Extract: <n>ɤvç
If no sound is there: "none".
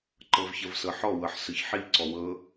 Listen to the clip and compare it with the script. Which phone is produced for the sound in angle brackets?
ǃ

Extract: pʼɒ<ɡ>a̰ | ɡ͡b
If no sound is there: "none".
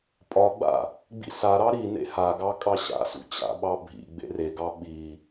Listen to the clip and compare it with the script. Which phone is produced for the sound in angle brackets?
ɡ͡b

